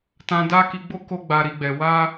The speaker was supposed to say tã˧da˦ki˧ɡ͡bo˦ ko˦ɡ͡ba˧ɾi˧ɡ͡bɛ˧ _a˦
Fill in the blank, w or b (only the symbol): w